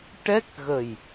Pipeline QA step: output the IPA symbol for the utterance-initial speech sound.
ʈ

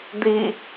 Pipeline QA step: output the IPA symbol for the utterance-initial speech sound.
d̪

